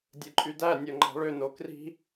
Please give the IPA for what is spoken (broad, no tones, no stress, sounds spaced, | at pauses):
dʲ ɯ ǃʼ y d æ nʲ o ŋ͡ǃ ɑ̤ ɭ ø n o k r i̤